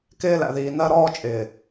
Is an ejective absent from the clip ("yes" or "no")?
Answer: no